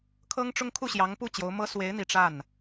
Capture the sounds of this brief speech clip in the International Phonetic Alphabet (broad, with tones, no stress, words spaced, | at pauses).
kʰɤ˥ŋʈ͡ʂʊ˥ŋ kʰu˥˩ɕjɑ˧˥ŋpu˥˩ t͡ɕjo˧˥ʊ̯mɤ˥ swe˧˥ɪ̯n̪i˨˩ ʈ͡ʂa˥˩n